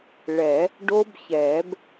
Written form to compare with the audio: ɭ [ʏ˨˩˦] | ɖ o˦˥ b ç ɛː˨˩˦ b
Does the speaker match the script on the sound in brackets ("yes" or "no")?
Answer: no